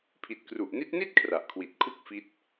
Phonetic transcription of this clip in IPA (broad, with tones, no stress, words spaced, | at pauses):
pʰi˨˩t̚kru˨˩ʔni˦˥t̚ni˥˩t̚ kʰra˨˩ʔkʰwi˨˩t̚kʰu˥˩k̚ fi˦˥t̚